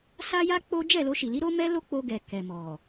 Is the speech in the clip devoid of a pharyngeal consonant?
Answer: yes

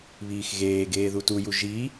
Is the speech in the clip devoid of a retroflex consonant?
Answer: yes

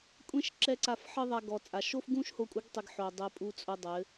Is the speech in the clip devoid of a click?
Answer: no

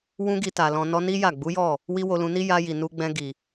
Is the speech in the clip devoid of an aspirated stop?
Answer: yes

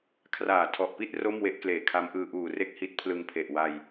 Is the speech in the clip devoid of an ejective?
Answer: yes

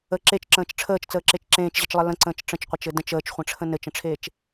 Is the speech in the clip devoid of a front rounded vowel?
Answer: yes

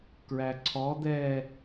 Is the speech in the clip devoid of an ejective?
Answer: yes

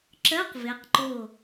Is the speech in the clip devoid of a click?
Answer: no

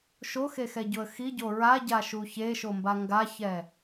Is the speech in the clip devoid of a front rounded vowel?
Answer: yes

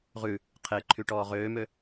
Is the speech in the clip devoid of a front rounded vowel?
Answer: no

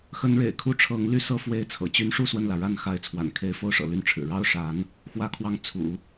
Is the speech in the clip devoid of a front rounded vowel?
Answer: no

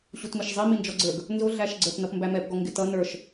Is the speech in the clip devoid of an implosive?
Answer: yes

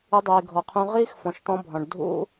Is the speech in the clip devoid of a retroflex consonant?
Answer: no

